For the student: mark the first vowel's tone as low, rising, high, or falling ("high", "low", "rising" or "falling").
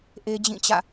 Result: high